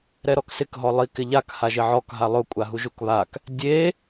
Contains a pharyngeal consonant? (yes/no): yes